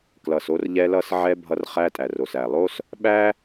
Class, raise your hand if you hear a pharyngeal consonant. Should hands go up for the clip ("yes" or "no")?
yes